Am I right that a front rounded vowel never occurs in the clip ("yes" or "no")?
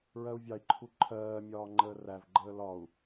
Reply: yes